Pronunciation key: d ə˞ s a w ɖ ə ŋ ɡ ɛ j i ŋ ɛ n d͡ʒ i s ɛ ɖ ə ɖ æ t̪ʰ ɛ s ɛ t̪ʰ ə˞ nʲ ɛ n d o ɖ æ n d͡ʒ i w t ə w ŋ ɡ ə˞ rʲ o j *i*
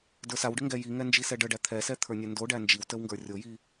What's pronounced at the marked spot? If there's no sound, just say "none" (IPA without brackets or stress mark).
i